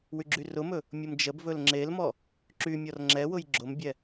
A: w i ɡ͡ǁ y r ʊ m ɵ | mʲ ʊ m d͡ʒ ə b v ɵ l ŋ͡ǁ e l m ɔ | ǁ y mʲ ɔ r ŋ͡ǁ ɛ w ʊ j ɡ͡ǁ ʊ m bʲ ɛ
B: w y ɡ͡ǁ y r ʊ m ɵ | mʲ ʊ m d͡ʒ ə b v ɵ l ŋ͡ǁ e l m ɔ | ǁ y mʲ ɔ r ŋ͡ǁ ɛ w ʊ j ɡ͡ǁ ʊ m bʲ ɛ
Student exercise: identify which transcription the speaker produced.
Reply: B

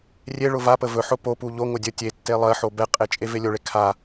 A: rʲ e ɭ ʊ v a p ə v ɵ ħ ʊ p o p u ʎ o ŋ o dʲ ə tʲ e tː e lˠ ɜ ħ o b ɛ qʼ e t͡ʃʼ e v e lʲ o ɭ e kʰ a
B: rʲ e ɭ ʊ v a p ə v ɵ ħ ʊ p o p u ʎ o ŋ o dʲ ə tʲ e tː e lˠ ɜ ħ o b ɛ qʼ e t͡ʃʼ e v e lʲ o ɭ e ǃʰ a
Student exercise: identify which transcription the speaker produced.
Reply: A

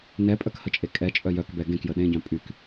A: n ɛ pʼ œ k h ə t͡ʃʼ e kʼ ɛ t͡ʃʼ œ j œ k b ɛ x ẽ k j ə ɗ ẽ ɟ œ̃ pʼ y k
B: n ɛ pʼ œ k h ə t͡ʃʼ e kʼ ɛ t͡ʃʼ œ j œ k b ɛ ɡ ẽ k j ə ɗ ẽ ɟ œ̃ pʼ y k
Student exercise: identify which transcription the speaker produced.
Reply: B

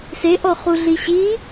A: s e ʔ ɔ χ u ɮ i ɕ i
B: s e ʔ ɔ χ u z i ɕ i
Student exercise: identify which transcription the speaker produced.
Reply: A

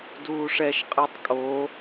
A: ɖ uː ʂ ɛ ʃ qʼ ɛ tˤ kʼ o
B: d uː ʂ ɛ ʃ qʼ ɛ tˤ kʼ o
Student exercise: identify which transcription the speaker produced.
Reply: B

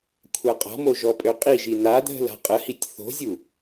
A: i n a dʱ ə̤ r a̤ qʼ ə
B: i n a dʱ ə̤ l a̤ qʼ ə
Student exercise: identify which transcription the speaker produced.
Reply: B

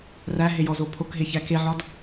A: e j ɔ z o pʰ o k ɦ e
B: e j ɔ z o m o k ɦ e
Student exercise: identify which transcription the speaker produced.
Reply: A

